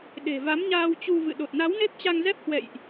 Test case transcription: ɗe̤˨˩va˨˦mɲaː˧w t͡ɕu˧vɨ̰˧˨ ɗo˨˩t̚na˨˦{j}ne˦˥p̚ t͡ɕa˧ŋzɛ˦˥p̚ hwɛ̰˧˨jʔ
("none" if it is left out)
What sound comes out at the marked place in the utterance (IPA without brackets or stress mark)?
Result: w